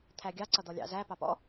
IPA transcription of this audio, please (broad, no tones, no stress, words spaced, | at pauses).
t̪ʰæɡʲɑ ǀʌd̪ɔlʲɑ̰ zæpɑpɔ̰